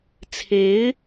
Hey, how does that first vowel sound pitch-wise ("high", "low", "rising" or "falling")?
rising